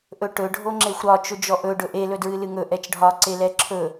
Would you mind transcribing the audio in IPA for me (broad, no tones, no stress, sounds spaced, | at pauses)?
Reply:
ʔ ɵ ʈ ɵ ɖʱ o ŋ͡ǁ e xʷ ɾ ɒ t͡ʃ ɵ d͡ʒ ɔ ʔ ɵ ɖ ɵ ʔ e l ɵ d ɹ ɨ l ɨ ŋ ɵ ʔ ɛ t͡ʃ ɖʱ ɒ ǀ e l ɛ ǁʰ ɵ